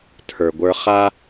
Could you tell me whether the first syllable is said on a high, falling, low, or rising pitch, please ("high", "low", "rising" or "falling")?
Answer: low